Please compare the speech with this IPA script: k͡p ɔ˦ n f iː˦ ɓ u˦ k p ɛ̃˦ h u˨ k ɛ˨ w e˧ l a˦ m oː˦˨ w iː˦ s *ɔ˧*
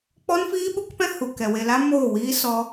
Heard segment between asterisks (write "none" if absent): ɔ˧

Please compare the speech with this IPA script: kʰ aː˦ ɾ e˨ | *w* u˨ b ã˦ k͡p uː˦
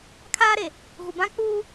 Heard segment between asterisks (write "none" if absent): ɣ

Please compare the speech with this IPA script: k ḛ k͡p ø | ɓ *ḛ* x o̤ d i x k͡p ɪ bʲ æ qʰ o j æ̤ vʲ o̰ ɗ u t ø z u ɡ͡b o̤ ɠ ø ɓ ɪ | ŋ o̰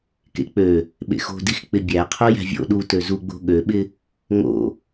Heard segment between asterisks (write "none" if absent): ḛ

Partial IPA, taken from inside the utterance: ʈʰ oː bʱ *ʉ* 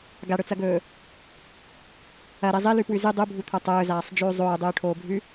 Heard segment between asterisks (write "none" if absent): ʉ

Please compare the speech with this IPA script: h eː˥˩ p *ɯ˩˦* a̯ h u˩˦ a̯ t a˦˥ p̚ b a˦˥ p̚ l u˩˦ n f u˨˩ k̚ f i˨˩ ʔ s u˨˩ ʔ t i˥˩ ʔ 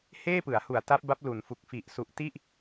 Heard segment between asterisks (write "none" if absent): ɯ˩˦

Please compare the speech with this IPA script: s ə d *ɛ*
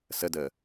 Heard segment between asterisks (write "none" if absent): ə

